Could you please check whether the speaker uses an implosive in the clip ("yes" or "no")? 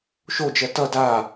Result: no